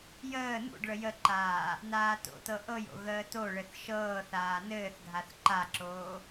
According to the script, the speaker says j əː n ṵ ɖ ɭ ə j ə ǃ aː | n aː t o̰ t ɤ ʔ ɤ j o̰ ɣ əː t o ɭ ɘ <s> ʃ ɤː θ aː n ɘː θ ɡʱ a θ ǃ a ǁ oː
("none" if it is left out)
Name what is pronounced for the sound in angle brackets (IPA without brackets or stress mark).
θ